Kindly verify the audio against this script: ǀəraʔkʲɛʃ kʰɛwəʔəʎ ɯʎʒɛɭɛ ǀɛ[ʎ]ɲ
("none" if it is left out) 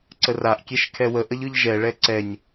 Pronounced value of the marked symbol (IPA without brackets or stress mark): none